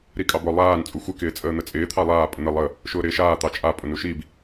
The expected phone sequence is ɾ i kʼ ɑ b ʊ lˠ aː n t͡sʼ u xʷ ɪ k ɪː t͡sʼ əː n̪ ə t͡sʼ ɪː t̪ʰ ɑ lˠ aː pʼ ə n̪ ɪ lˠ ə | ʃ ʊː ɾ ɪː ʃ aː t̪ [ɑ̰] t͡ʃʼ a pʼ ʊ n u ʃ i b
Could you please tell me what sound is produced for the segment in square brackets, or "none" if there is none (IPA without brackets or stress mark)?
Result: ɑ